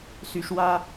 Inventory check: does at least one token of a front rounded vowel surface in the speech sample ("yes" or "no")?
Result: yes